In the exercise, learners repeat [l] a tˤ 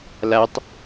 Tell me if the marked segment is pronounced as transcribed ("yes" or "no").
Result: yes